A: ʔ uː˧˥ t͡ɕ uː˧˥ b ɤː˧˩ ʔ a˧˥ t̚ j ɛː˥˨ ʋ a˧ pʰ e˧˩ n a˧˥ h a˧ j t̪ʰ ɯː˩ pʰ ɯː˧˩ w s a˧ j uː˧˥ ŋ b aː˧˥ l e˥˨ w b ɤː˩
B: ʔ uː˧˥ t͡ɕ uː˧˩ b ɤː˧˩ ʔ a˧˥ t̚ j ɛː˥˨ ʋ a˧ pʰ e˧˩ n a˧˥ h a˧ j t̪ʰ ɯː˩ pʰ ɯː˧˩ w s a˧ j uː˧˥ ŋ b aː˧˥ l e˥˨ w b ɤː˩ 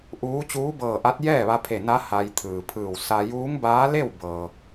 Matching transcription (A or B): A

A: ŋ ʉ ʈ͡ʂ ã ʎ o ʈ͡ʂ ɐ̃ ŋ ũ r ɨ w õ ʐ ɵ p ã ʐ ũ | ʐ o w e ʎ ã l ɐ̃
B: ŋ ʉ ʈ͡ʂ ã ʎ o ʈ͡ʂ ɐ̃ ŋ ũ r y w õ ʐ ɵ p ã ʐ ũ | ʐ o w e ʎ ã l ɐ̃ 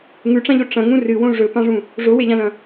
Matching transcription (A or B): A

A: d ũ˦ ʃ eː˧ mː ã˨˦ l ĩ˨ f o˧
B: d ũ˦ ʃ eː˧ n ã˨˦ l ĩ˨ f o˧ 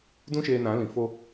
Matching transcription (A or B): B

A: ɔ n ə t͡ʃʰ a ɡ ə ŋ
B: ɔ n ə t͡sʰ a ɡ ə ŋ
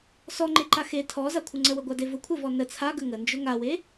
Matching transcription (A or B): B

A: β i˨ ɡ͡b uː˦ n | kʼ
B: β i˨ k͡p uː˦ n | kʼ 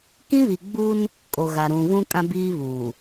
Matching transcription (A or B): A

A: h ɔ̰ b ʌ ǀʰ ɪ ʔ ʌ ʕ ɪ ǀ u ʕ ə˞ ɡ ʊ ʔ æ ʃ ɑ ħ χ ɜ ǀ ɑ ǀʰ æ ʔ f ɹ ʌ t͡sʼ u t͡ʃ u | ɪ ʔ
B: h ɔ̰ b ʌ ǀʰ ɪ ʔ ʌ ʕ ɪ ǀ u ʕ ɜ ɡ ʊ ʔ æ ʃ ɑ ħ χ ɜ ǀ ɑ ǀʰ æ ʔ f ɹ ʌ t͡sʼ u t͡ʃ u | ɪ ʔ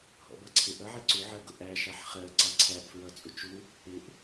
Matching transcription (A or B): B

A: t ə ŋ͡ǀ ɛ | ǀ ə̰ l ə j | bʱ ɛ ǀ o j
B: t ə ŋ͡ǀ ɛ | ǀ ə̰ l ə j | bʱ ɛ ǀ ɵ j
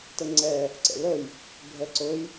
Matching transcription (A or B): B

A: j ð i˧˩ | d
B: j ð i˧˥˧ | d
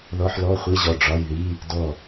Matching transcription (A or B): B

